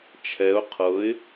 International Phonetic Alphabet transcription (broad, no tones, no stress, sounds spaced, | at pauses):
t͡ʃʰ ɛ ʊ̯ qʰ ɤ ɪ̯